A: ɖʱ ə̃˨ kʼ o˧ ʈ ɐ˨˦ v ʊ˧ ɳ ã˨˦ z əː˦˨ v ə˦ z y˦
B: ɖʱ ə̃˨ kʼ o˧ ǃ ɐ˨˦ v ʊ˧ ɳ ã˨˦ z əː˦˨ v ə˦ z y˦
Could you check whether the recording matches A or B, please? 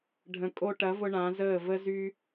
A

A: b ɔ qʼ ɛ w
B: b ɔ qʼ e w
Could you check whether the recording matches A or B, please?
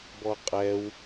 A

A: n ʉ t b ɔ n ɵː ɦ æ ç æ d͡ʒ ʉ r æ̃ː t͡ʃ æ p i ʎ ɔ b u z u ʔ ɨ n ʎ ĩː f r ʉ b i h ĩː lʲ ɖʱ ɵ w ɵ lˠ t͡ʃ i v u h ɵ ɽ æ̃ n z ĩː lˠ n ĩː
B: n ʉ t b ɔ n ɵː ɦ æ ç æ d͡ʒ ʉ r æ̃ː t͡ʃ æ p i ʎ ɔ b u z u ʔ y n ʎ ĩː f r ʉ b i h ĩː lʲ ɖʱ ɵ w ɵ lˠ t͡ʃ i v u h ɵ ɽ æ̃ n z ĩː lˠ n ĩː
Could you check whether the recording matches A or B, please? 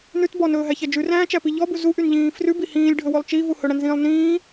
B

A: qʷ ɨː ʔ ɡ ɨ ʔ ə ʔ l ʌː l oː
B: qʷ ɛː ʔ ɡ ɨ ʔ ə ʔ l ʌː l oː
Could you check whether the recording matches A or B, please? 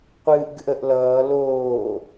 A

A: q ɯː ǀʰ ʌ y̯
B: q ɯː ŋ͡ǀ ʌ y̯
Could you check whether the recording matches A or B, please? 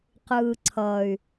A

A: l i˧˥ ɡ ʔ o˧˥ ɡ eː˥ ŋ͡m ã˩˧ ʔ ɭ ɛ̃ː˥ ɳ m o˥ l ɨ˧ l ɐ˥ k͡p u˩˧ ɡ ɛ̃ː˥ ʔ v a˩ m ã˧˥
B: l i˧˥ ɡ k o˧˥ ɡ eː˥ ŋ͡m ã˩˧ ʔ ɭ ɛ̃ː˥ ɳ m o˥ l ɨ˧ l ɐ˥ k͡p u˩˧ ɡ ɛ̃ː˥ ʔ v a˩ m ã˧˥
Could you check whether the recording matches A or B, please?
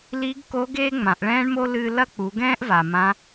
B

